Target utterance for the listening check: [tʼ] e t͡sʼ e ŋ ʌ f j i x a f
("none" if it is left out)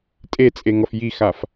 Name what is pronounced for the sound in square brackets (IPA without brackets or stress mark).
tʼ